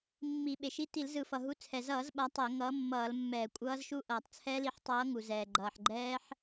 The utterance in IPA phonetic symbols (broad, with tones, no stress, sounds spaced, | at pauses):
mː i˧˩˧ ɓ e˩ ʃ i˦˥ t i˧˩˧ l z ɯ˧˩˧ f ʌ˩ ɦ u˨˥ t͡sʰ ɛ˩ z ʌː˧˩˧ z ɓ a˨˥ tˤ ɛ˧˩˧ ŋ ʌː˨˥ mː ʌː˧˩˧ l mː ɛː˧˩˧ kʷʼ ʌː˦˥ z ʃ u˦˥ ʔ ʌː˩ tˤ t͡sʰ ɛ˦˥ l i˨˥ ħ tˤ ʌː˨˥ ŋ u˩ z ɛː˩ ɡ͡ǃ ʌː˩ ħ ɡ͡ǃ ɛː˦˥ ħ